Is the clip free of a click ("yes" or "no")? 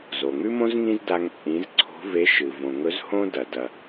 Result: no